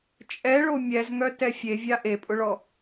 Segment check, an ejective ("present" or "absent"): present